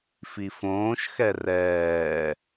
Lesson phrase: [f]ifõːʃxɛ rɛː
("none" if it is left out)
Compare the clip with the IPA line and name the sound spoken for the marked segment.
f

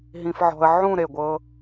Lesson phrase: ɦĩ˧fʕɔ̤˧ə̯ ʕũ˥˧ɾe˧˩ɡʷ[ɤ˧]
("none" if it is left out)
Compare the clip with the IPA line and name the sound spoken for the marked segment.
ɤ˧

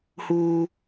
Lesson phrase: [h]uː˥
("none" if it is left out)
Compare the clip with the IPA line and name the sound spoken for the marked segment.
h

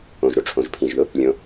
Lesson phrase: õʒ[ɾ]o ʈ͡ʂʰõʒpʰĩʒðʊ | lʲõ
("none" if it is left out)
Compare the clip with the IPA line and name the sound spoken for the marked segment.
ɾ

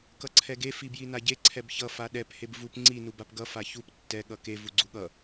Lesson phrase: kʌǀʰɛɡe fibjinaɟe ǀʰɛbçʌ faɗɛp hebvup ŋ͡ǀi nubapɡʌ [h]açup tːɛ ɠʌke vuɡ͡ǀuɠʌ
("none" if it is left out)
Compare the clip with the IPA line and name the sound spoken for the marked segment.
f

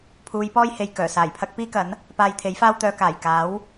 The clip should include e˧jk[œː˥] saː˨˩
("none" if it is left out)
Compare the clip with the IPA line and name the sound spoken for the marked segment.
œː˨˩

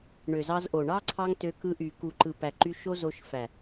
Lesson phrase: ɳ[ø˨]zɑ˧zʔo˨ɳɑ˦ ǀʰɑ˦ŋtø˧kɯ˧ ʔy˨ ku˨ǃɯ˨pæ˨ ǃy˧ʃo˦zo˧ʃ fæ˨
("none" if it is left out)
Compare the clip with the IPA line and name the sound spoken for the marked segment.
ø˨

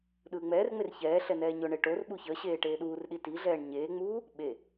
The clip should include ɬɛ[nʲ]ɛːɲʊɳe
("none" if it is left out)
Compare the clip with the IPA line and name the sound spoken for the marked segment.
n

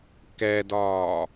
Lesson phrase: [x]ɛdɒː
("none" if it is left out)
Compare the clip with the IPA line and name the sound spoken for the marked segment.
k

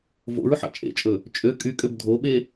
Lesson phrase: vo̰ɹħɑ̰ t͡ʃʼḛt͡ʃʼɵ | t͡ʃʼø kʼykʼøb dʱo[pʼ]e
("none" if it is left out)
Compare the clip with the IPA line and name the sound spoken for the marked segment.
ɓ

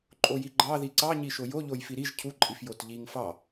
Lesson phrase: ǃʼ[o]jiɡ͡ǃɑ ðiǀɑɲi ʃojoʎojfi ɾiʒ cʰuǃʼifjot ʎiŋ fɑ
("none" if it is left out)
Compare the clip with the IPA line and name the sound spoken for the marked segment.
o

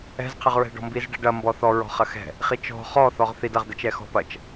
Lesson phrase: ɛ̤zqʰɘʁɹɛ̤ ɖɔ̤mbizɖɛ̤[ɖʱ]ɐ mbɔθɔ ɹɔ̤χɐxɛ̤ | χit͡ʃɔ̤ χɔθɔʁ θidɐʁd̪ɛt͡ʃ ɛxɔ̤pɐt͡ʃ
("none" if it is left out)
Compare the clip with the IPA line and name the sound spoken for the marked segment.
ɖ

